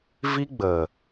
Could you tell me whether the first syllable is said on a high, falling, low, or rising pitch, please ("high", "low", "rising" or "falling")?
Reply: high